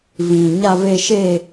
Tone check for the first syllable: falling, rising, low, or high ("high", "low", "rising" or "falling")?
low